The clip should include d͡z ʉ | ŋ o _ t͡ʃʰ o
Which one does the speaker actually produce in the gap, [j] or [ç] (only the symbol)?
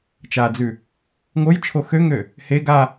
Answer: j